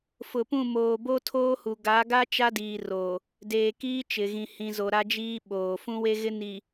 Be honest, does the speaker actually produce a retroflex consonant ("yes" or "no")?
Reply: no